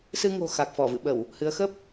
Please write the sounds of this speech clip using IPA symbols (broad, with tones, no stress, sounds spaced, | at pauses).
s ɨ˧ ŋ o̤˨˩ x a˨˩ k̚ f ɔ˧˩ v ɨ̰˧˨ ɓ ə˧˩˨ w | h ɨ˨˦ ə̯ x ə˦˥ p̚